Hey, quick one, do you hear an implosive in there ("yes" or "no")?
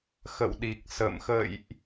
yes